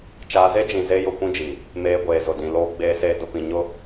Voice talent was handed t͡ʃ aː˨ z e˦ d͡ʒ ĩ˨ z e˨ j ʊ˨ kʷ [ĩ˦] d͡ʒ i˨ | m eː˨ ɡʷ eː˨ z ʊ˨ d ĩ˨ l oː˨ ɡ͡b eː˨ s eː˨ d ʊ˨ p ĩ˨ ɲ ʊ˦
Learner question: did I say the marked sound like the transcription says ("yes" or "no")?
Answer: yes